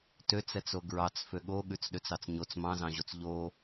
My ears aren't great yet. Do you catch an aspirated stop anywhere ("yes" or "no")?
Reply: no